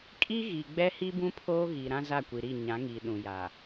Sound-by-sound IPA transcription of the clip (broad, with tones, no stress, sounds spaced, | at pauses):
kʼ i˦ ɣ i˨ ɡ͡b ɛ˦ h i˦ b ũ˦ pʰ oː˦ ɣ i˨ ɾ ã˦ z a˦˨ kʷ i˨ ɾ i˦˨ ɲ ã˨˦ ŋ iː˨ ɗ ũ˨ j a˨